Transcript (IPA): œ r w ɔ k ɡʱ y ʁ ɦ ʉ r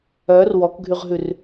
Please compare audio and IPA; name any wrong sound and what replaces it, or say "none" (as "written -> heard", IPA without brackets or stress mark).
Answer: none